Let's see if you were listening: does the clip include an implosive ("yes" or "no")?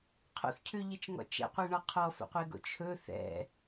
no